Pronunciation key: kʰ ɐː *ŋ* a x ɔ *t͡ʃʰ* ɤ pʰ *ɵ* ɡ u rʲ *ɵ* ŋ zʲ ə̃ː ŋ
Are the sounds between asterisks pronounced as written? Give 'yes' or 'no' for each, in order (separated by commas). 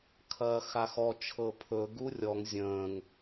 no, yes, yes, no